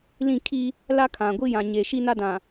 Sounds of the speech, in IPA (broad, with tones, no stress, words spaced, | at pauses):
lĩ˦˨kʰi˦ | la˦kʰã˨ɡʷi˦ jã˨ɲe˨ʃi˦na˦ dã˨